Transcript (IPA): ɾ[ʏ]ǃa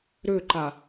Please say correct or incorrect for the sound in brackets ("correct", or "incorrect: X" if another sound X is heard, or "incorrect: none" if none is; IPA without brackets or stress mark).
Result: correct